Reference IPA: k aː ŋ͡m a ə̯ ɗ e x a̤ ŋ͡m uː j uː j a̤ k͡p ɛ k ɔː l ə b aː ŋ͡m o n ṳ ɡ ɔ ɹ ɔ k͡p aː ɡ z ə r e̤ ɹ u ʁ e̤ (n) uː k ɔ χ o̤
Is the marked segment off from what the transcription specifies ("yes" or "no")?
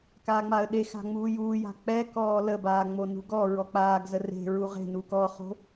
no